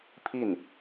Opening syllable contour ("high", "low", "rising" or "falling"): falling